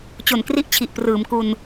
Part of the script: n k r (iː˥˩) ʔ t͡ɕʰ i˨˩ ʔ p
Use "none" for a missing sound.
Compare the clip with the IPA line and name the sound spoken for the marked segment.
i˥˩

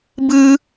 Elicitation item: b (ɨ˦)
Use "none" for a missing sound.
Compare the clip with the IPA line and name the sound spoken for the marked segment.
ɨ˦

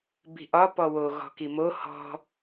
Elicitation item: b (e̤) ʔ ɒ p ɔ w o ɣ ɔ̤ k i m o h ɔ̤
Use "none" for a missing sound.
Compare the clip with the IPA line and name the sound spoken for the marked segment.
i̤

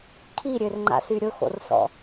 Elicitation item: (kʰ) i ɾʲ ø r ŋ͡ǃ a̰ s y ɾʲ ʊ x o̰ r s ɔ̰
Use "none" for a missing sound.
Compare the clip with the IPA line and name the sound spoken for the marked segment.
kʰ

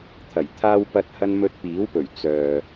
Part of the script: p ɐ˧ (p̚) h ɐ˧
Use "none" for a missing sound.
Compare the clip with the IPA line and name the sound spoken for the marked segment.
t̚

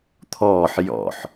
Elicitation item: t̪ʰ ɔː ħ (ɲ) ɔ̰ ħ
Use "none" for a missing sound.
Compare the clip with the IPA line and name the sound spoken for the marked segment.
j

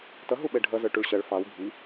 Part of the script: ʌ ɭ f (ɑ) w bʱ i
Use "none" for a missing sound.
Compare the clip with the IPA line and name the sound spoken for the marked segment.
ɑ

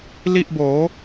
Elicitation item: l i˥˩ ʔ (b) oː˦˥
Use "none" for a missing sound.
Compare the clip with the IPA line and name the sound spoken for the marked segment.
b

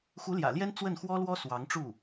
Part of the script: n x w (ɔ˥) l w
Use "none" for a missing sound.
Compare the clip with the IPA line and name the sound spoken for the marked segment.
ɔ˥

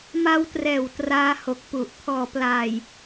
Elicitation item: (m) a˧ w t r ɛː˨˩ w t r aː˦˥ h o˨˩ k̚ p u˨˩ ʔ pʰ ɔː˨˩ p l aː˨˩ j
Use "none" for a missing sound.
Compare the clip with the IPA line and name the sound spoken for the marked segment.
m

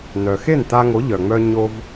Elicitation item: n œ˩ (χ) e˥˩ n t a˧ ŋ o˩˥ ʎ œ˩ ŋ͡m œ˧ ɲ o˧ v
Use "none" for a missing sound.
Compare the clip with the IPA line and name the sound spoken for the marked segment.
x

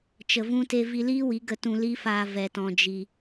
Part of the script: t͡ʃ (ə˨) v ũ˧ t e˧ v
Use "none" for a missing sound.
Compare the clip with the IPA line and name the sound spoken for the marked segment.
ə˨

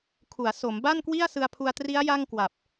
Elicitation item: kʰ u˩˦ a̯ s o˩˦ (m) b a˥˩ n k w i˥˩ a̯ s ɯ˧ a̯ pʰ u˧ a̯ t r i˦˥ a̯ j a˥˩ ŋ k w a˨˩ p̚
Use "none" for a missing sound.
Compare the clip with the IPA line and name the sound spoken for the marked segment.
m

